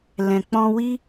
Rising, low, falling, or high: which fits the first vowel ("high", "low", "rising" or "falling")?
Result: low